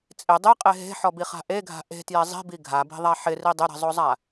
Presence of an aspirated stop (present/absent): absent